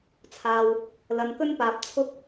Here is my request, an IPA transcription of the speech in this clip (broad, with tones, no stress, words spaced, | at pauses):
t͡sʰaː˧w | lɐ˧n kɵ˥npaː˧p̚ t͡sʰʊ˥k̚